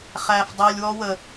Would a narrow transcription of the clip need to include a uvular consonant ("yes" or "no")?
yes